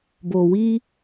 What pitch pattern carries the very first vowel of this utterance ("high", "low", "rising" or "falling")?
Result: low